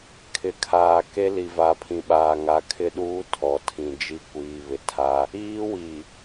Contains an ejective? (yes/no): no